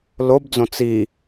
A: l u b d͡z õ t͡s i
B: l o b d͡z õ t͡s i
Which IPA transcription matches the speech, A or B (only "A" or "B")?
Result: B